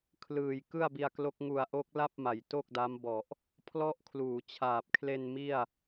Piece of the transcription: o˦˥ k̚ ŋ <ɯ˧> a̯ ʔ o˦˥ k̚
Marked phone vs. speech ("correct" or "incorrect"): incorrect